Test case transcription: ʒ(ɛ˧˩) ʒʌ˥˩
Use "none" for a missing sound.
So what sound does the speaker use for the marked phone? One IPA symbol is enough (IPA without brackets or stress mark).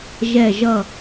ɛ˧˩